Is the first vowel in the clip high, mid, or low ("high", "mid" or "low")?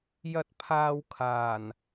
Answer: low